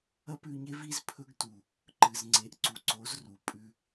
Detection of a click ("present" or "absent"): present